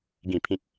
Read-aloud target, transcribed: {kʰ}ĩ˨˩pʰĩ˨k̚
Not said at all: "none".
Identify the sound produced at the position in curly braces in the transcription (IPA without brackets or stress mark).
ɡ